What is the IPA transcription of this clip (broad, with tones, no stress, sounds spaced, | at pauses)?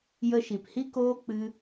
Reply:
j ə˧ ʃ i˨ p h i˦ k oː˦ k͡p ɨ˦